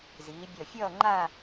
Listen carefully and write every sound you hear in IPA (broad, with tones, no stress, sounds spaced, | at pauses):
z iː˩˧ bʲ ʌ˧˩ fʲ ʌː˥˧ ŋ͡ǃ a˥˧